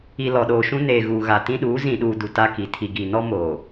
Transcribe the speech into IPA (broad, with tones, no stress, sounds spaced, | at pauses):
i˨ l ɔ˨ ɗ oː˨ ʃ ũ˦ n eː˨ ɣ uː˨ ɣ a˨ t ĩ˦ ɗ uː˨˦ z ĩ˨ ɗ uː˨ d u˨ t a˦ k i˨ tʰ i˨ ɡ i˨ n ɔ˦ m oː˨